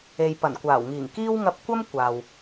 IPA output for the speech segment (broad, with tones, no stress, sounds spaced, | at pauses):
e˨ j p ɐ˨˩ n kʷ aː˨˩ w ŋ iː˨˩ ŋ k iː˥ w ŋ ɐ˧ p̚ kʷ ɐ˥ m kʷ aː˨ w